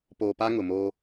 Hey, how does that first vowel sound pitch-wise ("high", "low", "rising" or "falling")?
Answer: low